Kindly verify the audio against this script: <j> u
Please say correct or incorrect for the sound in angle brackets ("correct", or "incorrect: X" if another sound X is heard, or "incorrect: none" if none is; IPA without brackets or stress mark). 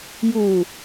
correct